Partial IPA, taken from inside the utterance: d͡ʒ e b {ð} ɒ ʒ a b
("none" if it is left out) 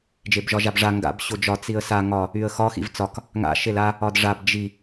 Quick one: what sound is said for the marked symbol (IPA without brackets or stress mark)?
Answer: ʒ